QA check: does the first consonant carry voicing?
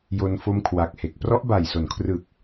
yes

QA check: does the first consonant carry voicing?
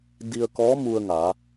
yes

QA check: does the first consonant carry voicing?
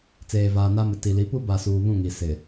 no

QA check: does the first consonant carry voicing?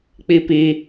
no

